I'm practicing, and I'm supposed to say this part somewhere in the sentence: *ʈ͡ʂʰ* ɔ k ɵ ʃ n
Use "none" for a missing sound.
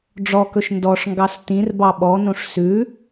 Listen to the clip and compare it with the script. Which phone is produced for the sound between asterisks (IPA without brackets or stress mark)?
ɖ͡ʐ